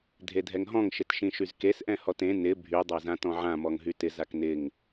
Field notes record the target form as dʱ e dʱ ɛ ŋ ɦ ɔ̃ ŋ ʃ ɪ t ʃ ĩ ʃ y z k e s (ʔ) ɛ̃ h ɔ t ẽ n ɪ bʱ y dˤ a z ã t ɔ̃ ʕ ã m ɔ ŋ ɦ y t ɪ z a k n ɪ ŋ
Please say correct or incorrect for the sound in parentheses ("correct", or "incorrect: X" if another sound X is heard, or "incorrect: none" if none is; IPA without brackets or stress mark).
correct